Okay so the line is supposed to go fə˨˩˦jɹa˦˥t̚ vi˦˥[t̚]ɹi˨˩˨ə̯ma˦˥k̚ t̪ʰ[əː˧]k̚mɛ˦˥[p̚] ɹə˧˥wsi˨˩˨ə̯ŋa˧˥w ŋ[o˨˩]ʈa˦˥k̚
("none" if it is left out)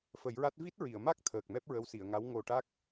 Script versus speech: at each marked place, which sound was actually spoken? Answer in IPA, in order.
t̚, əː˨˩, p̚, o˨˩

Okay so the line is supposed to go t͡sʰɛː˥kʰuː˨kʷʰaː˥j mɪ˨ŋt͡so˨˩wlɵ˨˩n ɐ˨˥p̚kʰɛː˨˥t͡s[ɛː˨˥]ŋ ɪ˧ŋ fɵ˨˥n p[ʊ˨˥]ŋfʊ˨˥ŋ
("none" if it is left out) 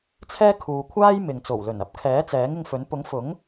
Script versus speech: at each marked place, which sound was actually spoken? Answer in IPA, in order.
ɛː˨˥, ʊ˨˥

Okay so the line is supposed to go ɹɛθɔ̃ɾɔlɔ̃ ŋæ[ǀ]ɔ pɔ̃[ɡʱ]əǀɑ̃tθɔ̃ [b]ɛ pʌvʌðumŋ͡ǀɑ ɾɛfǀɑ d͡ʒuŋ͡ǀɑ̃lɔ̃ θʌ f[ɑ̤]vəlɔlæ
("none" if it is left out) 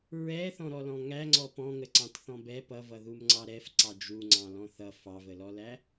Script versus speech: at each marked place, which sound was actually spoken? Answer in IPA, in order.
ŋ͡ǀ, ŋ, b, ɑ

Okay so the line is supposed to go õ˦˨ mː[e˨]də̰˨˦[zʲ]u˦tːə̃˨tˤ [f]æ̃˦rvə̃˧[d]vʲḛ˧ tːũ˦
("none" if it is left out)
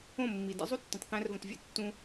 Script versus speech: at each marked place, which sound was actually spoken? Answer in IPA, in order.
i˨, zˤ, θ, t

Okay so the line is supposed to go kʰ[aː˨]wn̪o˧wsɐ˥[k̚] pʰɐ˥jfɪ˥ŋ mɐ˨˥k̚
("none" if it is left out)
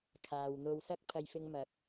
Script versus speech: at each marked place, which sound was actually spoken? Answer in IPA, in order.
aː˨, k̚

